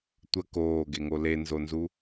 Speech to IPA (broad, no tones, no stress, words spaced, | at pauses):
tʷə koːɡeŋo lenzonzu